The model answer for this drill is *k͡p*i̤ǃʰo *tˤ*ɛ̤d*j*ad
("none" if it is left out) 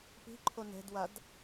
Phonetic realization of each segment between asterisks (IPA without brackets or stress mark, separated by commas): p, n, w